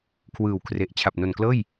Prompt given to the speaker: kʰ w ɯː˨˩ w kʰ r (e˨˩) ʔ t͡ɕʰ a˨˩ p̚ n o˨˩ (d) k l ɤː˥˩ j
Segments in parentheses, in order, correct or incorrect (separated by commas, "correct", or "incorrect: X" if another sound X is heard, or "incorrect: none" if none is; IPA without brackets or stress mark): correct, incorrect: n